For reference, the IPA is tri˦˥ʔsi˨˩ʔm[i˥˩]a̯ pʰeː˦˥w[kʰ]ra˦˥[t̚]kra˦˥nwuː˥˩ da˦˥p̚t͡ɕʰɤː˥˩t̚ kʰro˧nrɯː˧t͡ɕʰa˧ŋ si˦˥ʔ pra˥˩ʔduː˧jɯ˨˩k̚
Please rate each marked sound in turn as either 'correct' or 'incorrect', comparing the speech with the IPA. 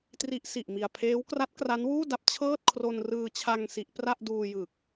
incorrect, incorrect, correct

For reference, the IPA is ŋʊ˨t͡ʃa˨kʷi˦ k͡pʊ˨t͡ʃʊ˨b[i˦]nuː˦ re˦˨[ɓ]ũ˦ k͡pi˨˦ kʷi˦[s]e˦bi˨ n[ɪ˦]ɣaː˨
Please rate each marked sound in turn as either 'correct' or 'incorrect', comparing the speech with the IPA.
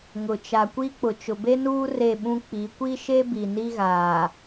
incorrect, correct, incorrect, incorrect

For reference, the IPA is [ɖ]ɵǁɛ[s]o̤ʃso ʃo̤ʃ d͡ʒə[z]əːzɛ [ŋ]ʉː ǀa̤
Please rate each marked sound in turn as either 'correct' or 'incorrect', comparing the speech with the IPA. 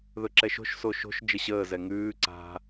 incorrect, incorrect, incorrect, correct

